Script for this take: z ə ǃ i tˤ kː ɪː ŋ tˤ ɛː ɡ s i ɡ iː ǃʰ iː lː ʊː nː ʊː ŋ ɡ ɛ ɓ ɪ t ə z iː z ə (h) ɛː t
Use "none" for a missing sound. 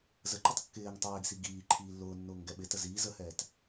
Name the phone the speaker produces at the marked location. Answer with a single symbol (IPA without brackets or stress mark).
h